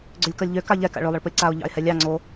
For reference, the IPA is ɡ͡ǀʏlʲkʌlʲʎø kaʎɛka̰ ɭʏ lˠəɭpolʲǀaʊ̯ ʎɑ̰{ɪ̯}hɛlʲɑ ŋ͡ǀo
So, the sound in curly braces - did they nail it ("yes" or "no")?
yes